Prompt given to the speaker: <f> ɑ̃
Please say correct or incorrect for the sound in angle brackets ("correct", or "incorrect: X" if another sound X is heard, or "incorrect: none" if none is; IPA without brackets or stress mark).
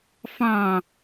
correct